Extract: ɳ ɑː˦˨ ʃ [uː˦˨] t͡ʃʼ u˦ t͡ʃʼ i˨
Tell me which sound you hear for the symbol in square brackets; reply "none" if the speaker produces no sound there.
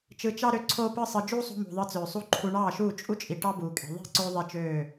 uː˦˨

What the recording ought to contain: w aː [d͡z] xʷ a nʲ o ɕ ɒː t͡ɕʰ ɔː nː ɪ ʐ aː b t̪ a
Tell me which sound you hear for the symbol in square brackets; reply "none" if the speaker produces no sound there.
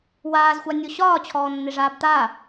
z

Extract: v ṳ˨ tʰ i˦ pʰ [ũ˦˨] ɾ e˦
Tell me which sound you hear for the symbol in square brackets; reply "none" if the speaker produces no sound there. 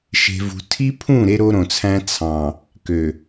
ũ˦˨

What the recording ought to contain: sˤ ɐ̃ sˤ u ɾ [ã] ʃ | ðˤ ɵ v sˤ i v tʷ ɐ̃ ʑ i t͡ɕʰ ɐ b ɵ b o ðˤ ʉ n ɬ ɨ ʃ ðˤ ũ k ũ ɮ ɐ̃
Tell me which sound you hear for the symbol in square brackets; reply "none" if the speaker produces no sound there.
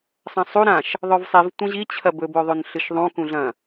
ã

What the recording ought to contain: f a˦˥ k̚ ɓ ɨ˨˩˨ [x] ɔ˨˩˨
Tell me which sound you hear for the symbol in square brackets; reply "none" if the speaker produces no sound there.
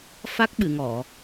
ŋ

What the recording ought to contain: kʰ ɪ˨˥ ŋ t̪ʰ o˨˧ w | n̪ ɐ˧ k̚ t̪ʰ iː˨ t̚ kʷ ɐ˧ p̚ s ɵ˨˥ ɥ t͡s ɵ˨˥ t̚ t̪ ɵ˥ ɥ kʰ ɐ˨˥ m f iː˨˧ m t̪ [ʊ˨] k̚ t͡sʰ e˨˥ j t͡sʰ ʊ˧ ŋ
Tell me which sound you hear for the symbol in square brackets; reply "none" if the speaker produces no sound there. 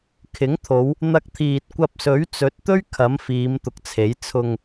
ʊ˨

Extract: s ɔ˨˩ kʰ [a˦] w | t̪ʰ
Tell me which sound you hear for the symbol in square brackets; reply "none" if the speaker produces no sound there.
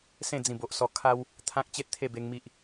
a˧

